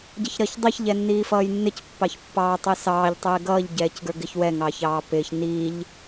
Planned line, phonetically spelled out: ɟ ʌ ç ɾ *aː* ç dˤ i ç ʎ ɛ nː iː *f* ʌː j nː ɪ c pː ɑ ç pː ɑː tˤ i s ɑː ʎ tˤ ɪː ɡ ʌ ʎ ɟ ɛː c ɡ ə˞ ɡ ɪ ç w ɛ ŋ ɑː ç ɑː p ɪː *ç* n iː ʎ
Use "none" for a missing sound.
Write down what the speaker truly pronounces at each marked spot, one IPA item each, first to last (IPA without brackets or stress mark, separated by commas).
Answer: ʌː, f, ç